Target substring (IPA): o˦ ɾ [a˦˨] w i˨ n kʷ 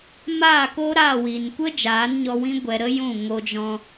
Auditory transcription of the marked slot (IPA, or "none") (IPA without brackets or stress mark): a˦˨